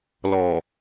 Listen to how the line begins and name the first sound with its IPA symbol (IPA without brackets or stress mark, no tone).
l